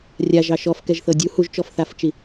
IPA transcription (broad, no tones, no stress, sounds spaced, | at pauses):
rʲ a ʒ ɑ ʃ ɔ f k ɛ ʒ θ ɤ dʲ u h u ʒ t͡ʃ ɔ f θ a f t͡ʃ i